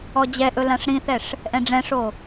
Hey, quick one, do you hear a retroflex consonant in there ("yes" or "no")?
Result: yes